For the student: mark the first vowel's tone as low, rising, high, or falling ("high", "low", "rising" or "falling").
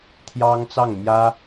high